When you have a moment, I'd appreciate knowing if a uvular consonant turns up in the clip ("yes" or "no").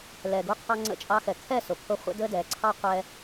yes